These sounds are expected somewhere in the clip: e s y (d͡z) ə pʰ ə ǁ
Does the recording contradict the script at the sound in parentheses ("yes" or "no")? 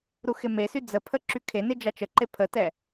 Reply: no